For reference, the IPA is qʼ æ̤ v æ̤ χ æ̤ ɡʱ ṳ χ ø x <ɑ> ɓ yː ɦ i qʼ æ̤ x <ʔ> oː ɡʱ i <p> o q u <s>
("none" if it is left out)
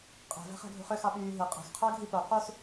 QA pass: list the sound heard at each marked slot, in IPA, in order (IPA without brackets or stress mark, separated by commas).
ɑ, qʰ, p, s